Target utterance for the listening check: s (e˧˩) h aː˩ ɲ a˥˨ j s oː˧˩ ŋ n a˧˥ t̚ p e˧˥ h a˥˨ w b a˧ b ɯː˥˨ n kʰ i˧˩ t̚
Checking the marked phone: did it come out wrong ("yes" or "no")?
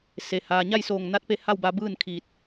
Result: yes